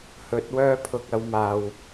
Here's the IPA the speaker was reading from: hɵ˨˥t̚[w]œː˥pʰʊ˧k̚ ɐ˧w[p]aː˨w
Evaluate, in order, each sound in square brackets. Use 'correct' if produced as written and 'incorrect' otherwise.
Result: correct, incorrect: m

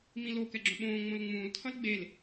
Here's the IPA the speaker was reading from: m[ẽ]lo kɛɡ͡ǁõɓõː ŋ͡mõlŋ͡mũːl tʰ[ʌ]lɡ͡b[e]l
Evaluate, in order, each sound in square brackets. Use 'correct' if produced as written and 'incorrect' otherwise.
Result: incorrect: ĩ, correct, correct

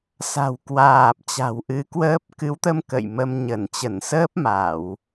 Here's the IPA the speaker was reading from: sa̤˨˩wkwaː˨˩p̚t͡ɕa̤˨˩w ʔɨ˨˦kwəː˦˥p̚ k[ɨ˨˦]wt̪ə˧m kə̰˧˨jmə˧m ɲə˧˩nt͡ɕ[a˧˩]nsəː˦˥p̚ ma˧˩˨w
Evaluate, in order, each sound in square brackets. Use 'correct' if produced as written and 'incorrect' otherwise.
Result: correct, incorrect: ə˧˩

